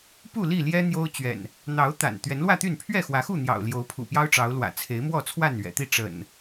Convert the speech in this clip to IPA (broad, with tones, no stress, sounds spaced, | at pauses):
p u˥˨ l i˥˨ l j ɛ˦ n̪ j o˦ ʊ̯ t͡ɕ ɥ ɛ̰˨˩ n | n̪ ɑ˨˦ ʊ̯ t̪ a̰˨˩ n t̪ ɥ ɛ˨˦ n l w ä˥˨ t̪ y˥˨ n pʰ ɥ ɛ˥˨ x w ä˨˦ x u˥˨ n̪ j ɑ̰˨˩ ʊ̯ l j o˨˦ ʊ̯ pʰ ṵ˨˩ p j ɑ˦ ʊ̯ ʈ͡ʂ ɑ˨˦ ʊ̯ l w ä̰˨˩ t͡sʰ e˨˦ ɪ̯ m w ɔ˥˨ t͡sʰ w a˥˨ n ɥ ɛ̰˨˩ t̪ i˥˨ ʈ͡ʂ ə̰˨˩ n